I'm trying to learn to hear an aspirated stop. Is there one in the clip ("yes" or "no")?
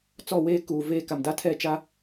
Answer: yes